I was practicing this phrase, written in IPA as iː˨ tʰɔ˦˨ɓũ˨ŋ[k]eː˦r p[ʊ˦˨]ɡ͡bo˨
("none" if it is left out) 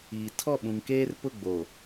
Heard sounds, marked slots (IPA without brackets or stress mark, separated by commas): k, ʊ˦˨